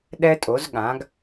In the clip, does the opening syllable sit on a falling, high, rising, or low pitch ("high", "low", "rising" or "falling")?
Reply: high